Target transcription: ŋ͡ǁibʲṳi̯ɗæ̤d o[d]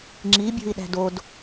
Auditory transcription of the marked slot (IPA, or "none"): d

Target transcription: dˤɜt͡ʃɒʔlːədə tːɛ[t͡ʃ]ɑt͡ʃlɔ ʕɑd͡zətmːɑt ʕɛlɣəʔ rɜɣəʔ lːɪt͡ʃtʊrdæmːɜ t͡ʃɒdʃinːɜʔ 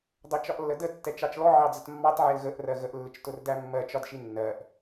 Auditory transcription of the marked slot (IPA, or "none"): t͡ʃ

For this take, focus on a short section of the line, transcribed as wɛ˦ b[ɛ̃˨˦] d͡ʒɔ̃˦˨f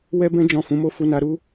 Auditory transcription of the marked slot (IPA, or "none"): ɛ̃˦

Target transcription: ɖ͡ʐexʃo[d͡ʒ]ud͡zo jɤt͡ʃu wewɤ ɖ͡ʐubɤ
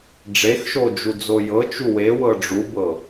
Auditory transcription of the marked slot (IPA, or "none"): d͡ʒ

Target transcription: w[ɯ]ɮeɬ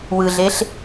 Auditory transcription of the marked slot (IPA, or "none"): ɯ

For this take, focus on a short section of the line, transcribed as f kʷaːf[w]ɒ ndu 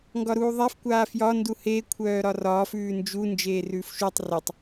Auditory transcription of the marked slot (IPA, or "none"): j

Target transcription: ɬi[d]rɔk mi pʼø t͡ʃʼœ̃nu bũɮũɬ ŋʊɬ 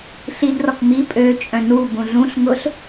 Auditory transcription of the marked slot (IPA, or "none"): d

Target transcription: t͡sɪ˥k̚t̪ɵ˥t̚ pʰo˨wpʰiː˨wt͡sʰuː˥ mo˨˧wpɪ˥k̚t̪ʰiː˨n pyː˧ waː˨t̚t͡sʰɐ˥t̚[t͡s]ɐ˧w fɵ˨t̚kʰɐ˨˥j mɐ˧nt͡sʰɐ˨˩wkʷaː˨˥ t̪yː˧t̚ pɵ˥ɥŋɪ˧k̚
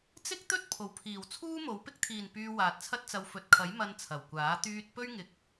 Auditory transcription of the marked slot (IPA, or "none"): t͡s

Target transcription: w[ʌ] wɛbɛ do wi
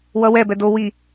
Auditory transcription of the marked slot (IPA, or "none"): ʌ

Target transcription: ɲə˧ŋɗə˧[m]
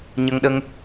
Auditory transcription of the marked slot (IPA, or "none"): ŋ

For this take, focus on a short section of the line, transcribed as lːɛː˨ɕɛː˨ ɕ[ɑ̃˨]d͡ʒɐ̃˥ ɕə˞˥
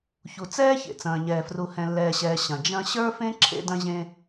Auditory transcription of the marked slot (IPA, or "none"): ɐ̃˨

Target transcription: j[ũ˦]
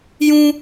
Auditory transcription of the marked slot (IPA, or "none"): ũ˦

